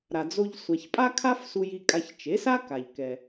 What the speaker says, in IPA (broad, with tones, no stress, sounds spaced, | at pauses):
ɾ a˩ d͡z o˧ ʎ sʷ a˩ ç pʼ a˥ kʰ a˥ f s u˧ j i˧ kʼ a˧ ç t͡ʃ e˩˥ s a˥ k a˩ ʎ k ɛ˩